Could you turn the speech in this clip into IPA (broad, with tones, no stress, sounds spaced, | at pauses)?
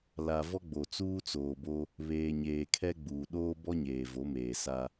l a˨ v ɔ˦ ɡ͡b o˨ t͡s uː˦ t͡s oː˨ b o˦ | β eː˨ ɲ eː˨ kʰ ɛ˦ ɡ͡b uː˨ ɗ oː˦ b ɔ˦ ɲ eː˨ v o˨˦ m eː˨ s a˦